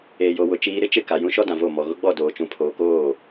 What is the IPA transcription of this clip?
eː˨jo˨wʊ˨ t͡ʃiː˨ɾɪ˦ t͡ʃɪ˦˨ ka˨ jũ˦ʃɔ˦dã˨ vo˦˨ mɔ˨ ɣʊ˦ɡ͡bɔ˦˨ doː˨t͡ʃũ˨pʰoː˨koː˦˨

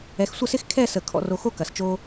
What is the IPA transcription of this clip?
ɛ˧xsʷə˥˧sɪ˥x kʰɛ˥˧sə˧˩ kʰɔ̰˧ro˧xo˥ kɐ˧˩st͡ʃo˥

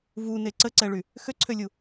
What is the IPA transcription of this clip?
vune ǀəǀɛɭy | xøǀʰølʲu

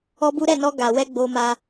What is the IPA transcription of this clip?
ɔ˦bu˦ ɾɛ˦˨nɔ˧ ɡa˧ wɛ˦ɡ͡bo˧ma˧

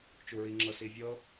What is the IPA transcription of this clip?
t͡ʃuɹiŋ͡ǁɤ sivʲɤ

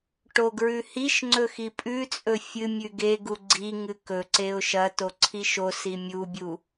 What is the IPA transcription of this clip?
ʈoɡɹʉhiʃŋ͡ǀɵ xipʼʉt͡sʼɵ fʲɨmʲʉɡ eɡu ɡ͡ǀi ŋɨkɵǀeʊ̯ ʃɐto ǀʰiʃosi mʲubʲu

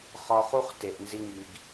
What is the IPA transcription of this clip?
χɒ˧χu˦χte˨ʔ nzi˦ŋi˧ɡ

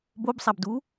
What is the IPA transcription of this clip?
bobsˤabdu

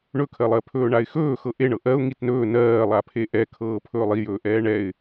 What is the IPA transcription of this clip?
ɳɵkʰɜlˠɜpʰɵː ɳaɪ̯xɵːxɤ ʔeɳɤ ʔɜʊ̯ ŋitnɵː nɜːlˠapʰe ʔɛ kʰɤːpʰɵːlˠijɵː ʔɛːɳɛɪ̯

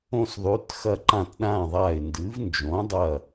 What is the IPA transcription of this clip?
õ˦˨s ðˤʉ˨˥t xɐ˦˨ǃã˦˨tɗã˦˨ðˤa˦˨ɪ̯ ndɨ˨˥vnd͡ʒõ˨˥dˤɐ˦˨

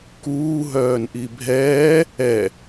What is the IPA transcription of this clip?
kuː ɦœːnʔibʱɛː | ɛ

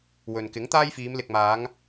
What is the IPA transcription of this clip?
wɵ˨n kɪ˨˥ŋt̪aː˥jfiː˨˧m lɪ˨k̚maː˨˧ŋ

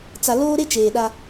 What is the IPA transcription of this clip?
t͡sa˨loː˦ɾe˦ t͡ʃeː˨ɗa˦

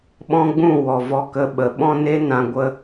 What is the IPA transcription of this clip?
ɓɔ̃˦ɡ͡bũ˦˨wɔ˨ vɔ˧kə˧ɓə˨ ɓɔ̃˦ne˦nã˧ ɡʷə˦

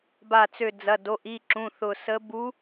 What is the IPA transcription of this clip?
ba˧˩t͡sø˧˩ d͡zɐ˩˧˩do˩˧˩ʔi˩˧˩ǁũ˩˧˩ θʊ˧˩sə˧˥ bu˧˥

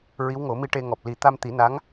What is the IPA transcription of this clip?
ɹi˧˥wŋo˨˩˦mi˧ ʈe˧ŋɔ˨˩p̚ li˨˩˦t̪a˧m t̪i˨˩˦na˧˥ŋ

